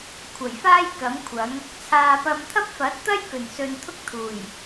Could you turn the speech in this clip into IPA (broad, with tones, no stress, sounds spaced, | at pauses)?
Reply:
kʷʰ ɐ˨˩ j f aː˥ j k ɐ˨˥ m kʷʰ ɐ˨˥ ŋ | t͡sʰ aː˨ p ɐ˧ m t̪ʰ ɐ˥ p̚ f ɐ˨˥ t̚ t̪ ɐ˥ j k ɵ˨˩ n s ɵ˨ n t̪ʰ ʊ˥ k̚ t̪ʰ uː˨˩ j